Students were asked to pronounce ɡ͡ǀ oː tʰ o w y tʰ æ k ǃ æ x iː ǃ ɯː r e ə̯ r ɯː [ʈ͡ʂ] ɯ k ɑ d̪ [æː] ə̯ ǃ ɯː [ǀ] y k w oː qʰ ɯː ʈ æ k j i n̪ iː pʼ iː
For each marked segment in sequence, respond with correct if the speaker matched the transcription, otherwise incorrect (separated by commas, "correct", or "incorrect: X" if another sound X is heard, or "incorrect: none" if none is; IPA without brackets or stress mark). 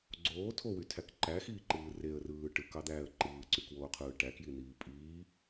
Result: incorrect: ʈ, correct, correct